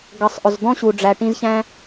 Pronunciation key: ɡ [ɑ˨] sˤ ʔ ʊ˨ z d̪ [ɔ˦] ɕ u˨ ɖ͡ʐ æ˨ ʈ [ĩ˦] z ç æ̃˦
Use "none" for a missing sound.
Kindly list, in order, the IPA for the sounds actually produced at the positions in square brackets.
ʌ˨, ɔ̃˦, ĩ˧

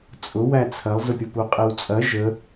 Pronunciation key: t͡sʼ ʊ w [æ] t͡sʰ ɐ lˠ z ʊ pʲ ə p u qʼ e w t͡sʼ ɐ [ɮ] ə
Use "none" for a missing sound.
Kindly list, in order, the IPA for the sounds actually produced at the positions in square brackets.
æ, ʒ

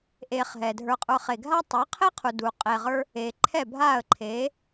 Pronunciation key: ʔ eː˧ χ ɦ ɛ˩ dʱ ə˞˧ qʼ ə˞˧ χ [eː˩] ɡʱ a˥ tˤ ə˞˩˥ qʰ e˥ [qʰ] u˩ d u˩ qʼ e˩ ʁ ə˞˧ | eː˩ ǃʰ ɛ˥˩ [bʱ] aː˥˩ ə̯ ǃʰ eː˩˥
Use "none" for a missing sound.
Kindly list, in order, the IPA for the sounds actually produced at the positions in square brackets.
e˩, qʰ, bʱ

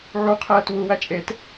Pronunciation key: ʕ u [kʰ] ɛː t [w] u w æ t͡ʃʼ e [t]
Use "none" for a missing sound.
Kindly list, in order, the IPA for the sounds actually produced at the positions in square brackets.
qʰ, w, t

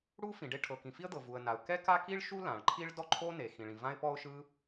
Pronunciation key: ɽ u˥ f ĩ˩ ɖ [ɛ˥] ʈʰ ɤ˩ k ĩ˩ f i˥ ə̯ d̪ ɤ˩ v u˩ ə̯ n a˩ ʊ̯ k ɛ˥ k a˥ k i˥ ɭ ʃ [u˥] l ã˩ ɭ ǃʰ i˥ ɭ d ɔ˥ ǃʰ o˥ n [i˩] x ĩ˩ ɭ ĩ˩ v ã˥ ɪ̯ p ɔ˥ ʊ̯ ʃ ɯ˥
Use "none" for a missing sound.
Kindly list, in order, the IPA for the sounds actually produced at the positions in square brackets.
e˥, u˥, e˩

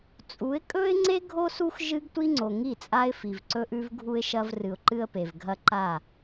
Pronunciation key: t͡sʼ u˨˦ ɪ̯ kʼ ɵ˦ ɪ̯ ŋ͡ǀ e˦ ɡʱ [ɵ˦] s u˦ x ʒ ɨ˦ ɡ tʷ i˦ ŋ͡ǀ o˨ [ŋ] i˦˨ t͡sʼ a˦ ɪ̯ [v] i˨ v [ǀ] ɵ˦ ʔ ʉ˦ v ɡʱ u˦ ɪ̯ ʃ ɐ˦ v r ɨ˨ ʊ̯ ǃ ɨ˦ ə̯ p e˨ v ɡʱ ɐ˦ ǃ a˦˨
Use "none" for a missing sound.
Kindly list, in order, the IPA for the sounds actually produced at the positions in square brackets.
o˦, ŋ, f, ǀ

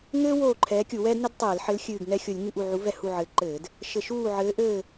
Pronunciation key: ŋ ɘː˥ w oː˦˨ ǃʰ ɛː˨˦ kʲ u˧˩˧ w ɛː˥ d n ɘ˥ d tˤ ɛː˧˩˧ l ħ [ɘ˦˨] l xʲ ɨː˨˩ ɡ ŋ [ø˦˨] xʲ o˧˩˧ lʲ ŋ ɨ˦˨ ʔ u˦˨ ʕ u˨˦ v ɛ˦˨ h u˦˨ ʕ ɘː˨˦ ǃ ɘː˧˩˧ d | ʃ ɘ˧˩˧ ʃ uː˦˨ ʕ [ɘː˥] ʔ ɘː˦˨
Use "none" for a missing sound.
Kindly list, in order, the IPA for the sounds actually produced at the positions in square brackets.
ɘ˨˦, ɛ˦˨, ɘː˨˦

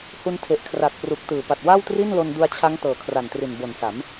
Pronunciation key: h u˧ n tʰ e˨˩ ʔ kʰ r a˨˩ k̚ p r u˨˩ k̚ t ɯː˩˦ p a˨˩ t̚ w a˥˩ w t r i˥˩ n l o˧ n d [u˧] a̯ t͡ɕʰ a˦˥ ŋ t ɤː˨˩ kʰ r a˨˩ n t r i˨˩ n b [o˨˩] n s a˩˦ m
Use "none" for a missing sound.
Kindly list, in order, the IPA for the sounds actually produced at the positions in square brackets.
u˧, o˨˩

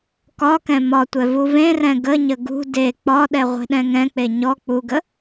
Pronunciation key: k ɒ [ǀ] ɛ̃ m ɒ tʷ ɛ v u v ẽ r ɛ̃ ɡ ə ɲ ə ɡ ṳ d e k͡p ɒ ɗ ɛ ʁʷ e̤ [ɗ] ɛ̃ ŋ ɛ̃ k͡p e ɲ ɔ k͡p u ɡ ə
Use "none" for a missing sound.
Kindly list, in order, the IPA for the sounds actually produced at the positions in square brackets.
k, ɗ

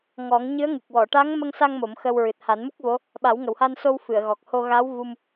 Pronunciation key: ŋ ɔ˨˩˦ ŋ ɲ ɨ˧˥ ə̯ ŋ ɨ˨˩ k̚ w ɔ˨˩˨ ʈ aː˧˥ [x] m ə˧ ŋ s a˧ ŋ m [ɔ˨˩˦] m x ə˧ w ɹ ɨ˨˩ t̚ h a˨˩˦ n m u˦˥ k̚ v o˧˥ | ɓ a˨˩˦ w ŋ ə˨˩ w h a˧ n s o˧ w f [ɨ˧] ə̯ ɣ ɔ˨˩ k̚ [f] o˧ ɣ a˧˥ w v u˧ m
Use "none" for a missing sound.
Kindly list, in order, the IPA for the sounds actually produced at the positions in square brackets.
ŋ, o˨˩˦, ɨ˨˩˨, h

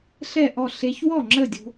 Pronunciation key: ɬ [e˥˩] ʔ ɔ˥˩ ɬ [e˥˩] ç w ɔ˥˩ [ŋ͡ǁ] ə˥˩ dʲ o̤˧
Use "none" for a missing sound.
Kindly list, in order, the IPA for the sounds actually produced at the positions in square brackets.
ɛ˥˩, e˧, ŋ͡ǁ

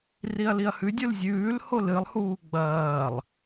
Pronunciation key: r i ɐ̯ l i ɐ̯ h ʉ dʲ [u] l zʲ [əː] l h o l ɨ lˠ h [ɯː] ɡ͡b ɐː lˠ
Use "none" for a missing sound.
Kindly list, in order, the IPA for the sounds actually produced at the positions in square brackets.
u, ʉː, uː

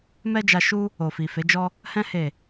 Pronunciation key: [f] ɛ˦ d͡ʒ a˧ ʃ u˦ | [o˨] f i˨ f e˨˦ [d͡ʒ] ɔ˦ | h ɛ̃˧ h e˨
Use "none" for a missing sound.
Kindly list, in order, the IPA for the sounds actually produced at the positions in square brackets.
m, o˨, d͡ʒ

